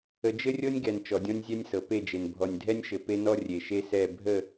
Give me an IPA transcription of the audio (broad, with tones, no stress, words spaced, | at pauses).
ə˨d͡ʒɘ˦rʲɤ˦nʲɡɛ˨n t͡ʃɔ˨dʲɔ̃˦nʲzʲɛ˦nʲsɤ˨ pe˦˨d͡ʒe˨n bʱɔ˨nʲdʱɛ˦nʲʃɘ˨ pe˦nɔ˦ rʲe˨ʃe˦sɛ˦˨ bʱə˦˨